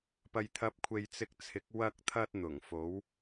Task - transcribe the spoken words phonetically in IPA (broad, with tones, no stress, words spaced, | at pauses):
pɐ˨jt̪ʰɐ˨˥p̚kʷʰe˨j t͡sɪ˧k̚t͡sʰɪ˨˥k̚ wɐ˧k̚t̪ʰɐ˧t̚n̪ʊ˨˩ŋ fo˨˥w